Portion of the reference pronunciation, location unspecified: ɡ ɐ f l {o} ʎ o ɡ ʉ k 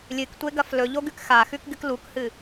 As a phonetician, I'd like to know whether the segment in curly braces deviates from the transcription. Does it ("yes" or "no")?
yes